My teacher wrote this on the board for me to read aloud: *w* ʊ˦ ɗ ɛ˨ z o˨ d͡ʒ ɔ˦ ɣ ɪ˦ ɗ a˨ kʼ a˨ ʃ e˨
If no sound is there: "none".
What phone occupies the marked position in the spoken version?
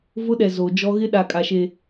v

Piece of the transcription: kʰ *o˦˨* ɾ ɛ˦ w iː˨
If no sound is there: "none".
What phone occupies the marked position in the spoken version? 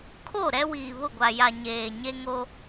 o˦˨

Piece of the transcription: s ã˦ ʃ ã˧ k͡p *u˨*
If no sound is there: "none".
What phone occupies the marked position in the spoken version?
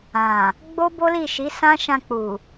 u˨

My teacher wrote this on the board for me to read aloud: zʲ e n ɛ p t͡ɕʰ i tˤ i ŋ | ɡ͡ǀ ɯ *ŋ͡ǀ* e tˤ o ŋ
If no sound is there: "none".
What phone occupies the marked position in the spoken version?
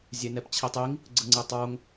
ŋ͡ǀ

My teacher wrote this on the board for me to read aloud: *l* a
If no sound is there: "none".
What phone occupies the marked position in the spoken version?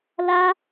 l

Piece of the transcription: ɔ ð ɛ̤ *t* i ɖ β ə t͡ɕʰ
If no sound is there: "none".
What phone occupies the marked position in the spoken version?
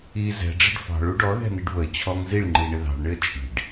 n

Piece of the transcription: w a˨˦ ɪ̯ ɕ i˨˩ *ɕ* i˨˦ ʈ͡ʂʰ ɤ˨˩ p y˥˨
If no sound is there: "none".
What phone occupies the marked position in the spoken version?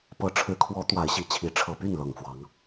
t͡ɕʰ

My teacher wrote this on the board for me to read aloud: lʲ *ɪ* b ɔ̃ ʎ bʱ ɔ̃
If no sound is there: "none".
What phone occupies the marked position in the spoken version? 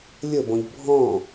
ə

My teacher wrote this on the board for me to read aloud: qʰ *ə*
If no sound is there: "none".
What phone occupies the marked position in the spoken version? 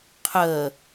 ə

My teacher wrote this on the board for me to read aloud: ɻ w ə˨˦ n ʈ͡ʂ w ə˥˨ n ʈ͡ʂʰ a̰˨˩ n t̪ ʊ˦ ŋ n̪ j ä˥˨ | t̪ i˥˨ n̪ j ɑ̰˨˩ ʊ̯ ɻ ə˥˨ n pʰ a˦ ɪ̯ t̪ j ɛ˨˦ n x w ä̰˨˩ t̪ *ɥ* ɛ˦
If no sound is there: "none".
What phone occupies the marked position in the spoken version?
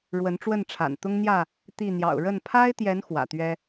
ɥ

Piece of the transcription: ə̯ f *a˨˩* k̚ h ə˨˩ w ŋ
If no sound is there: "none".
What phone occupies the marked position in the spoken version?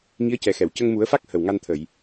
a˦˥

